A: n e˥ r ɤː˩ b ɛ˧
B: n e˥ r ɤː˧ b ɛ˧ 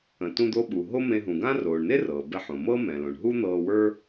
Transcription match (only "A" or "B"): A